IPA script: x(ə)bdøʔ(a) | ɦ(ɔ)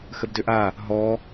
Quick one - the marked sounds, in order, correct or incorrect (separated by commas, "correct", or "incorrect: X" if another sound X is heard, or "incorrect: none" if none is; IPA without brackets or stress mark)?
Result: correct, correct, correct